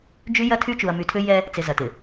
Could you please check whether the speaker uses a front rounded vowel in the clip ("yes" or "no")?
yes